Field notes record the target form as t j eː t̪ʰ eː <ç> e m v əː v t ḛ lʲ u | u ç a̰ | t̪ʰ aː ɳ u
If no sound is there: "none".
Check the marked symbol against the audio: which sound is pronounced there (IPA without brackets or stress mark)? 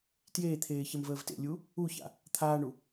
ç